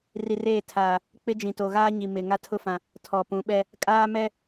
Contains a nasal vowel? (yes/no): yes